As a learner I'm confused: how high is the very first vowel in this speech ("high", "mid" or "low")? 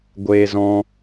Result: mid